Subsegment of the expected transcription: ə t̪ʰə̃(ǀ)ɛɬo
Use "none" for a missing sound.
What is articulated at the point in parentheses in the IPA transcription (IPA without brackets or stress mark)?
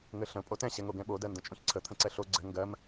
ǀ